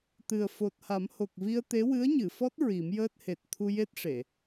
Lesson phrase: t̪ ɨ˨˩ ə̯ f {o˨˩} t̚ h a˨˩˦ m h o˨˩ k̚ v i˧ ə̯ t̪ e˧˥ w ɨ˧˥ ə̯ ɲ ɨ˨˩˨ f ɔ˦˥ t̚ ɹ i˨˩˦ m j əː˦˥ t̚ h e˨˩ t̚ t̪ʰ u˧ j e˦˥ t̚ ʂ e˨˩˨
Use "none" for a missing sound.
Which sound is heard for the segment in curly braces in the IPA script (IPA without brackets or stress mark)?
o˨˩